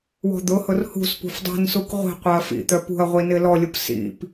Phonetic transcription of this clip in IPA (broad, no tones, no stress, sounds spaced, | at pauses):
w ɔ̤ d̪ ʊ h ʊ r h ṳ s p ṳ f dˤ i̤ n s u k ʁʷ i̤ qʷ œ ɐ̯ f ḭ t̪ œ p ṳ ɐ̯ ʁʷ i n ɪ l ɔ lʲ ʊ p s ḭ p